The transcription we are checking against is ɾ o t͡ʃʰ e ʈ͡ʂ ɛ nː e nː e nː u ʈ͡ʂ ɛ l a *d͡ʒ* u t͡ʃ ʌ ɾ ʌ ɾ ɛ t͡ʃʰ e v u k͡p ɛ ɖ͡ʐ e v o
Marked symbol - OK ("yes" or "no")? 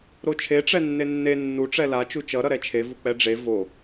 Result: no